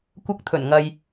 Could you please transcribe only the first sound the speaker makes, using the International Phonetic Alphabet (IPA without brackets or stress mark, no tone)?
kʷ